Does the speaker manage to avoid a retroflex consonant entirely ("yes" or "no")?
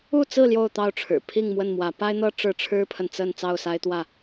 no